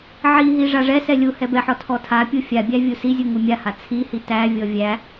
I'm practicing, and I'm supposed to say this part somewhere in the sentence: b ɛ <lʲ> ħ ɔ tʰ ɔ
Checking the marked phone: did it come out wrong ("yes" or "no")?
yes